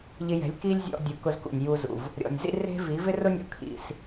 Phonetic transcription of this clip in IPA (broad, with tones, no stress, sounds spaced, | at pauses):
ʎ ɪ˧ j ɛ̤˨˦ lʲ k i˦ lʲ zʲ ɔ̰˧ dʲ u˨ k ʊ˧ z k ṵ˨ nʲ j u˧ z ṵ˨ v | ɾʲ ɔ̰˨ nʲ z ḭ˦ r e̤˦ v i˨˦ v ɪ˦ r ʊ˦ nʲ ɔ̰˧ kʰ ḭ˧ s